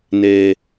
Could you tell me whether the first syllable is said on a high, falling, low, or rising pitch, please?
low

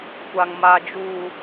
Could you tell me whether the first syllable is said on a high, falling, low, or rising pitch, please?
low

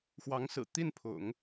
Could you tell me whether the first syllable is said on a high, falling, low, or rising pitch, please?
rising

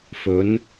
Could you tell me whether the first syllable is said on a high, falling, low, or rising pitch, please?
rising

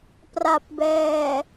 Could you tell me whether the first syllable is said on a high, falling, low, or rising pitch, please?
low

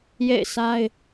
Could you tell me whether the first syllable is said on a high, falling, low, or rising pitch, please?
falling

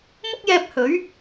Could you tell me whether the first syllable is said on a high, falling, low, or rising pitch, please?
high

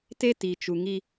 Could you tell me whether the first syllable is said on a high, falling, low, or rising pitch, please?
high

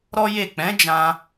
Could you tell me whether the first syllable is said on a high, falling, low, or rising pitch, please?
high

